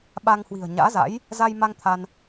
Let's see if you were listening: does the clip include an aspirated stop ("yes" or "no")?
yes